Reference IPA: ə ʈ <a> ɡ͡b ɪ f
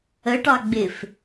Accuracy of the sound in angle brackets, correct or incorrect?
incorrect